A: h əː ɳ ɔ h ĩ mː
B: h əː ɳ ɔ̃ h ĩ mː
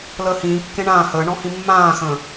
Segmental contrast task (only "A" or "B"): B